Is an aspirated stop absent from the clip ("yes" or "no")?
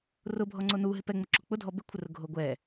no